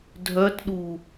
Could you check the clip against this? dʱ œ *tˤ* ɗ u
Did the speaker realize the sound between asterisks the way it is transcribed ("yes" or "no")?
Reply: no